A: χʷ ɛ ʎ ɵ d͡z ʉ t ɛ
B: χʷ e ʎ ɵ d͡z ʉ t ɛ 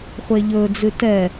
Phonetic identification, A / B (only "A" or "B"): B